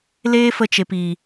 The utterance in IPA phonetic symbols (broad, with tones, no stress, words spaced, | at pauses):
leː˦fə˧t͡ʃe˨p i˨